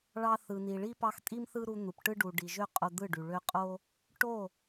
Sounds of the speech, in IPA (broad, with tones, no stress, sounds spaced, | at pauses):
ɭ ɑ˧ θ ɯ˨ n i˨ ɭ i˦ p ɑ˧ x tʼ i˦ m θ ɯ˦ ɾ u˧ n̪ u˨ p ʈ ɯ˦ ɖ u˨ ɖ i˨ ʒ ø˦ qʼ o˧ d̪ ɯ˦˨ ɖ y˨ ɭ ø˧ qʼ o˦ | ʈ o˦˨